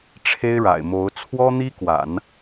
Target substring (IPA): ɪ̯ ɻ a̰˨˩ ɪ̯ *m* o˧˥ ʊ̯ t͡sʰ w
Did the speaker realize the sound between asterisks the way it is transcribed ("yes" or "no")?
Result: yes